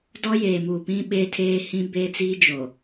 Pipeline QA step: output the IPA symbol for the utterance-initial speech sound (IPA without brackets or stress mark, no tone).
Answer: d